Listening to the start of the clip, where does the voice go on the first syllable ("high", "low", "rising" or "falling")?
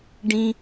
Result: high